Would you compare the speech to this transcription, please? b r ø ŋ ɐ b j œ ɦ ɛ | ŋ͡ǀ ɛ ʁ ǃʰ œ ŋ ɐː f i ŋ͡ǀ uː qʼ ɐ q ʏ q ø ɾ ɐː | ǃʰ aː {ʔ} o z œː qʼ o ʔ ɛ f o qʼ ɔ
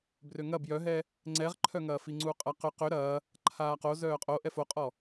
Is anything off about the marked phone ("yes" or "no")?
yes